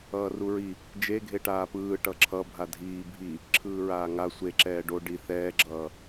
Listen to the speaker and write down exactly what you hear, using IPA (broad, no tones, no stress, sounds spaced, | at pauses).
ʌː r u ɹ i | d͡ʒ e ɡʱ e ʈ aː p ɯː ʈ ʌ ǁʰ ʌ bʱ a dʱ iː bʱ i | ǁʰ ɯː ɹ aː ŋ a sʷ e ǁ ɛː ɖ o ɖ i θ ɛː ɡ͡ǁ ʌː